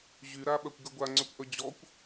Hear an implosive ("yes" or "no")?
yes